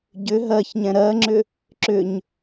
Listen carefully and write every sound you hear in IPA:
ɟ ʏ ɦ ɜ ç ɲ ɛ̃ ɾ ɜ ŋ͡ǁ ʏ | ǁ ʏ ɲ

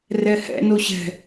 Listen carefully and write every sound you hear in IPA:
r ɛ h ɛ̰ n o ɕ ɛ̤

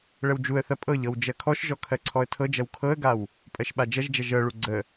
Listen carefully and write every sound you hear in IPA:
ɭ ə w d͡ʒ u ə̯ θ ɐ pʼ ɤ ʎ ɤ w d͡ʒ ɜ kʰ ɔ ʃ ʒ ɔ kʰ ɜ ǀʰ ɔ ə̯ tʰ ɤ d͡ʒ ɐ w kʰ ɤ ə̯ ɡ a w | pʼ ɜ ʃ ɓ a d͡ʒ ɐ ʒ d͡ʒ ɐ ʒ ɤ ɭ u ɡ͡ǀ ə

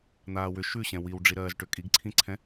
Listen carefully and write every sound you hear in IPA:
n̪ aː w ʏ ʃ ʉ ɕ ɛ̃ w i w ɖ͡ʐ i ɾ ɜː z ʈ ʏ kʼ i ɡ ǀʰ ĩ ǀʰ ɛ̃

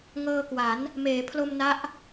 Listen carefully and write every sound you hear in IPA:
ŋ ɤː˧ k w a˩˦ n | m eː˩˦ pʰ l o˧ m n a˦˥ ʔ

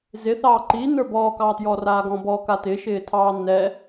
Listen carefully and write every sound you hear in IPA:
z ɪ θ ɑː ǃ iː n ə˞ b ɔː k ɑː t j ɔː r aː ɡ ɔ̃ b ɔ k a t ɪ ʃ ɪː tʰ ɑː n ɛ

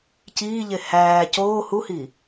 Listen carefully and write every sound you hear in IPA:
c iː ʎ e h æː c oː h u h i

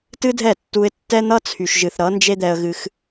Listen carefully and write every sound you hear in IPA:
t ɨ˦ dʱ ɛ˦˨ tː u˧ ɪ̯ tː ɛ˦ n̪ ʌ˦ t͡sʰ y˨ ʃ ʒ ɨ˨ θ ɾ ʌ˨˦ n d͡ʒ e˦ d̪ ɛ˧ ə̯ ɣ ɨ˧ x

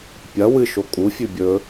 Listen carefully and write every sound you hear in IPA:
pʲ ɐ w ɨ ʃ o kʼ u fʲ ʉ bʲ ɵ

